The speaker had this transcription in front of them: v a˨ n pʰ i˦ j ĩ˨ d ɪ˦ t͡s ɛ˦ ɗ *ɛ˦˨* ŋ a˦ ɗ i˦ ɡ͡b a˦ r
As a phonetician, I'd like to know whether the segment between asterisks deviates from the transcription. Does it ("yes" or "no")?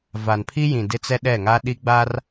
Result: no